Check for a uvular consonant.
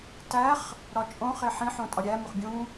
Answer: present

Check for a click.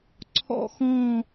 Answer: present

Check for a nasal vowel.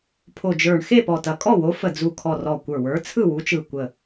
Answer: absent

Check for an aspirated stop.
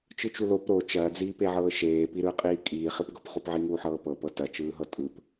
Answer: absent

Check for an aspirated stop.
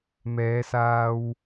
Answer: absent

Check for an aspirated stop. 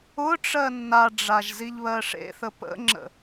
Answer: absent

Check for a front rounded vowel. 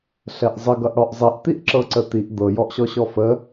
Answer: absent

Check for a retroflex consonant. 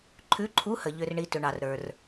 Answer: present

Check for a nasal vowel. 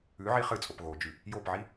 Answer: absent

